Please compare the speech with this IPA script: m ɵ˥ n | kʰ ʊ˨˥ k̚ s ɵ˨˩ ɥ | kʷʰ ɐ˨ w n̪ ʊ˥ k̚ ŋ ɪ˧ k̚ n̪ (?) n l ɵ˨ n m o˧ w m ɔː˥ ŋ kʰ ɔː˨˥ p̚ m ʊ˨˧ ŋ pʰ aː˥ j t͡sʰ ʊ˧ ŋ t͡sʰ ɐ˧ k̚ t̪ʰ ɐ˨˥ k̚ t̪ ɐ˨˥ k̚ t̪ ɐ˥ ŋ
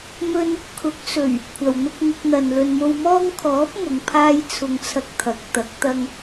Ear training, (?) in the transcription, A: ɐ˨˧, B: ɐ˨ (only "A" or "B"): B